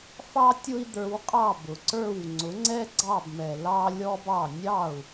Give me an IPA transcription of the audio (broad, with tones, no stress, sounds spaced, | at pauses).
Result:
f ɑ˥ tʲ ʊ˥ i̯ d̪ ə˞˧ w qʼ ɑ˥˩ b ʊ˩ ǀ ə˞˥˩ w ŋ͡ǀ ʊ˩˥ ŋ͡ǀ ɛ˥ ɡ͡ǀ ɑ˥˩ b m ɛ˩ l ɑ˥ lʲ ɔ˥ b ɑ˥˩ nʲ ɑ˥˩ u̯